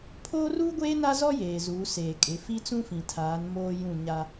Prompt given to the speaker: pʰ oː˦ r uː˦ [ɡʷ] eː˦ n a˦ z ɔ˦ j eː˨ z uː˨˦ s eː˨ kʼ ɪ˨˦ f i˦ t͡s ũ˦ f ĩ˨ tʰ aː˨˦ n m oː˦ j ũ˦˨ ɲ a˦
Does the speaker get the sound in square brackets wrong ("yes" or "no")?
no